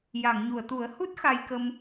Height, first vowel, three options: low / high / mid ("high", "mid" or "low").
low